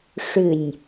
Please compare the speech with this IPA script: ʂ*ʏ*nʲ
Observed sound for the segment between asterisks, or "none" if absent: ʏ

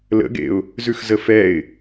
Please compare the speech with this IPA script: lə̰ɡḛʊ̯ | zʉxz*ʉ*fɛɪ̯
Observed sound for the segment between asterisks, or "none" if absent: ə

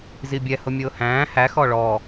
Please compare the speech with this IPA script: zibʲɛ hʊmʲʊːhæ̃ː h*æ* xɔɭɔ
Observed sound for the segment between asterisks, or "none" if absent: æ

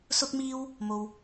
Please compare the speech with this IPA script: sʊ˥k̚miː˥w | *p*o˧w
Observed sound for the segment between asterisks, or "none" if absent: m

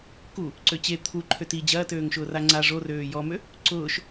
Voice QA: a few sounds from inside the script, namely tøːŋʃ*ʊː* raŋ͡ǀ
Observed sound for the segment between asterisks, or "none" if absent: ʊː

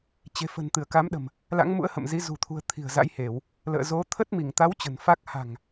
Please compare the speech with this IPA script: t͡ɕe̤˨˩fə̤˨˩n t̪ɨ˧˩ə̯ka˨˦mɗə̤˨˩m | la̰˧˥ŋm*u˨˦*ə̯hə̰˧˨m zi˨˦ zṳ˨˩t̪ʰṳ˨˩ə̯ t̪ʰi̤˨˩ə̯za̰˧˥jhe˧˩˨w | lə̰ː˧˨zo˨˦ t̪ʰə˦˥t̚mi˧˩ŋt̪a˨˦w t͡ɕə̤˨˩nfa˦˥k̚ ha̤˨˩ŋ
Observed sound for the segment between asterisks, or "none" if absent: ṵ˧˥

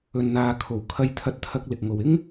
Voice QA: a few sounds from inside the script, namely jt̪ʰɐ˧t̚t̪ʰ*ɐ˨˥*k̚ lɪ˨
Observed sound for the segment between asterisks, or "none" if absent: ɐ˧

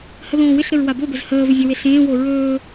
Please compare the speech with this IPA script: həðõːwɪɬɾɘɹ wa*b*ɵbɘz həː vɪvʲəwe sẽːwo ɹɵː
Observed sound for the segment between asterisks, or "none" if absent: b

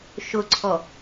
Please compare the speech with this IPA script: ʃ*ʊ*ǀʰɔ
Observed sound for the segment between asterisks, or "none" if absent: ʊ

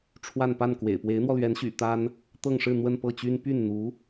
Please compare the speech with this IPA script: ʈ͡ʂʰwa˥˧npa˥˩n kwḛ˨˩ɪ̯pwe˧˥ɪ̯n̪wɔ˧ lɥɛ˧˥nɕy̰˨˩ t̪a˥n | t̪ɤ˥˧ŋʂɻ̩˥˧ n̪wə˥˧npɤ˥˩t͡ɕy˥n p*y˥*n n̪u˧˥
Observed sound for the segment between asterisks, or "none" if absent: y˥˩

